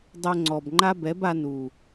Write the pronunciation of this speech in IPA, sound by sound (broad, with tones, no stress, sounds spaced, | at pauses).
dˤ o˧ ŋ͡ǀ ɔ˨ b ŋ͡ǃ a˦ b ɛ˨˦ b a˧ n u˨